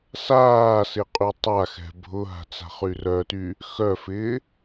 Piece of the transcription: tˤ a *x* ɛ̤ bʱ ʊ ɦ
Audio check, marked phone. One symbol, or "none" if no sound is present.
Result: x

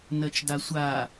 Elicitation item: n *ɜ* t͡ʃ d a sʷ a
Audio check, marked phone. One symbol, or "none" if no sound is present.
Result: ɜ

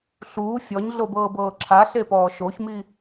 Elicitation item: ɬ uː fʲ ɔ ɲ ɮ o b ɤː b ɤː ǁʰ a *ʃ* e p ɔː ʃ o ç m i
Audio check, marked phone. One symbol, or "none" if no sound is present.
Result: ɬ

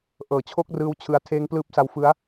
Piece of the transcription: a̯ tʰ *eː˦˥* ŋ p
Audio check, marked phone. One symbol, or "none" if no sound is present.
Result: eː˦˥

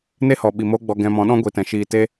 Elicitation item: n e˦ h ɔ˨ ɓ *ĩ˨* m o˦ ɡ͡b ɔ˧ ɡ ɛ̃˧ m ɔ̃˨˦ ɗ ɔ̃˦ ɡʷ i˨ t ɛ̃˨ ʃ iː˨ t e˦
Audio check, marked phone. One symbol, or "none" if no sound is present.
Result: i˨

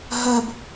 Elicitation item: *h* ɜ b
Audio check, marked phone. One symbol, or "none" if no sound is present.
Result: ɦ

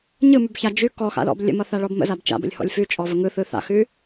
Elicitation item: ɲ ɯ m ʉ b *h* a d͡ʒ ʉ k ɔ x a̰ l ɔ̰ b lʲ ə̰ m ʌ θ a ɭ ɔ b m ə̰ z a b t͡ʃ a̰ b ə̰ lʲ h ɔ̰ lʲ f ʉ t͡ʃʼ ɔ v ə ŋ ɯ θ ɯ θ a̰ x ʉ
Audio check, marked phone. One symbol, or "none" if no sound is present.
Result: ç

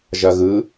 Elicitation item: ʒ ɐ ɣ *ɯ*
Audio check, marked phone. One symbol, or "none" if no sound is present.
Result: ɯ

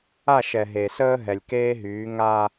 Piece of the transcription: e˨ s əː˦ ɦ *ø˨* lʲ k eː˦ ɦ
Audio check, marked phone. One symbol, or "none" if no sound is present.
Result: ɛ˨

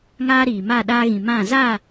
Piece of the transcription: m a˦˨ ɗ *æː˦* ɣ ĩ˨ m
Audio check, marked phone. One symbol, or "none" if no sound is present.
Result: aː˦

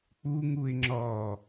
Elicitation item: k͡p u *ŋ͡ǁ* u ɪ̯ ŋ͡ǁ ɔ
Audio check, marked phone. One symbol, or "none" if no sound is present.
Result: ŋ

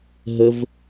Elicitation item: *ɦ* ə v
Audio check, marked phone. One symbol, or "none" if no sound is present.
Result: ɦ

